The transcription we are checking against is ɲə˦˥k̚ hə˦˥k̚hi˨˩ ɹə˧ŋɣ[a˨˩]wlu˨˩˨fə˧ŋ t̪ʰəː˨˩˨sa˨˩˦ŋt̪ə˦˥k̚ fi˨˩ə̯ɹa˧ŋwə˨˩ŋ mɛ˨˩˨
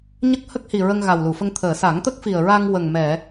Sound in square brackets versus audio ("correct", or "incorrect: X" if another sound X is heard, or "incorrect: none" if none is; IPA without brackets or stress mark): correct